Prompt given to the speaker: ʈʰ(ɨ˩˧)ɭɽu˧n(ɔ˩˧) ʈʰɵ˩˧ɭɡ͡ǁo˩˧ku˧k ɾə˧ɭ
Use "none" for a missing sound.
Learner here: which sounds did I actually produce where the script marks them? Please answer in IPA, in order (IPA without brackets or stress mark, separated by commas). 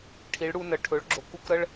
i˩˧, ə˩˧